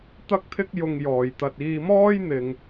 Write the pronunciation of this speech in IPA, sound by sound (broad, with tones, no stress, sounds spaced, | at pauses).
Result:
t̪ ɐ˥ k̚ t̪ʰ ɪ˥ k̚ j ʊ˧ ŋ j ɔː˨ j t̪ ɐ˧ t̚ iː˧ m ɔː˥ j n̪ ɪ˧ ŋ